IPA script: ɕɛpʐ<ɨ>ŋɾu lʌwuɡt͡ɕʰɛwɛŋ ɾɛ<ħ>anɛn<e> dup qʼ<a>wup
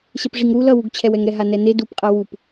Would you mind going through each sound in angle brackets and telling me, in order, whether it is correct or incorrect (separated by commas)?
incorrect, incorrect, correct, correct